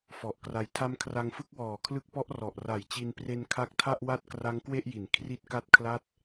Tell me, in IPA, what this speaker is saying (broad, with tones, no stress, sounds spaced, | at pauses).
f ɔ˨˩ ʔ k r a˧ j tʰ a˦˥ m kʰ r a˧ ŋ f ɯ˥˩ k̚ w ɔː˨˩ kʰ l ɯ˦˥ k̚ p ɔ˦˥ ʔ r ɔ˨˩ ʔ r a˨˩ j t͡ɕ i˧ n p r e˧ n kʰ a˦˥ k̚ tʰ a˥˩ ʔ w a˥˩ t̚ k r a˦˥ ŋ k w e˥˩ ʔ j i˩˦ n kʰ r i˥˩ t̚ k a˥˩ t̚ kʰ l a˥˩ t̚